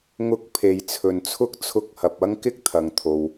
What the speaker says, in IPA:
ŋ ʊ˧ k̚ pʰ e˨ j t͡sʰ ɵ˨ n t͡sʰ ʊ˥ k̚ t͡sʰ ʊ˧ k̚ h ɐ˨ p̚ ɐ˥ ŋ k ɪ˥ k̚ t̪ʰ ɐ˨ ŋ t̪ʰ o˨ w

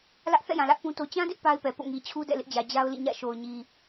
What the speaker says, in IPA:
l ä˦ ʔ θ ɛ̰˦˨ j ã˨ l ä˦ ʔ p ũ˦ t o˦ t͡ɕ ã˦ d ɪ˦ ʔ p a˦ ɪ̯ p ɛ˨ p o̰˦˨ ŋ i˨ t͡ɕʰ u˦ d ɛ̰˦˨ l ɪ˦ ʔ d͡ʑ ä˨ d͡ʑ a˦ ʊ̯ l ḭ˦˨ ɲ ä̰˦˨ ʃ o˨ ʊ̯ ɲ i˨

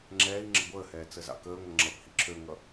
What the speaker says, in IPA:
ŋ͡ǁ ɛː i̯ ŋ͡ǁ ə̰ ɡʷ əː h ɛː t͡s ə z ɑ̰ k əː ŋʷ ʌ ŋ͡ǁ ʌ p h ḭ ǁʰ ø ŋ ʌ

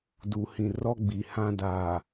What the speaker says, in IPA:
d u˨ h ĩ˨ r ɔ˦ ɡ͡b i˨ h ã˦ d aː˨

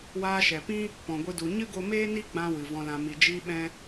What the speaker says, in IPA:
w aː˧ ʃ ɛ˨ p ĩ˦ | p ɔ̃˨ ɡʷ ɨ˧ d u˨ ɲ ɨ˦ ɡ o˧ m eː˦ n i˦ ɡ͡b ã˧ w ɨ˨ v ɔ̃˧ l ã˧ m i˧ d͡ʒ iː˧ ɓ ɛ̃˧

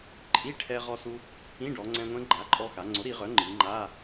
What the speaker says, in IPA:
ǃʼ i˧˥˧ ʈʰ ɛ˧ ʁ ɔ˧ s u˧ | ĩ˧˥˧ ɖ ɔ˩˧ ŋ͡ǀ ɛ̃˧ ŋʷ ɛ̃˧˥ ɡ͡ǃ a˩˥ ǃʼ ɔ˧ x a˩˧ ŋ͡ǀ o˩˥ ɾ i˩˧ ʁ œ˩˥ ŋ͡ǃ i˩˧ ŋ͡ǃ a˧˥˧

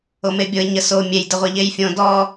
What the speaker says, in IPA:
o m e bʲ o ɪ̯ ɲ ə s o mʲ e j d ə ʁʷ e ʎ e j fʲ õ d ɔ

